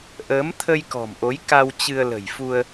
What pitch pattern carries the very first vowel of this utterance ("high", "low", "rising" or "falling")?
rising